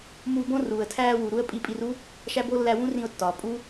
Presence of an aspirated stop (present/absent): present